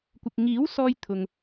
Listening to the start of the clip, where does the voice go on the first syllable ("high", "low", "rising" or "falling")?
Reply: low